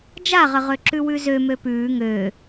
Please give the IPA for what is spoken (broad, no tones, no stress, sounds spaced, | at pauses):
d͡ʒ a ʁ ə ʁ ø ǁ ʉ w ʉ z ø m ø p ʉː ŋ øː